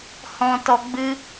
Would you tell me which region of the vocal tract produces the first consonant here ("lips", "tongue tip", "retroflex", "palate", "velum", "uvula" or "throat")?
throat